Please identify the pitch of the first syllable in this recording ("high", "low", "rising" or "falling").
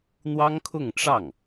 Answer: high